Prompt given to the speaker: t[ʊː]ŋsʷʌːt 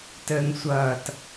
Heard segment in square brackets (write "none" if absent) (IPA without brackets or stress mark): əː